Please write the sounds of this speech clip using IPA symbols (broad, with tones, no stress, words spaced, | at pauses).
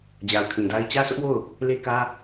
d͡ʑa˨ʊ̯kʰĩ˨da˦ɪ̯ t͡ɕä˦sʰʊ˦ʔwo˦˨ʊ̯ | le˦kä˦